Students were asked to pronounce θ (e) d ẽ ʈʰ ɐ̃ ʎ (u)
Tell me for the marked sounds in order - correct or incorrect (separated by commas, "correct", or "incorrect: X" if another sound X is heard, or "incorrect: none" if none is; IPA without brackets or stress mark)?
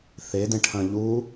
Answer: correct, correct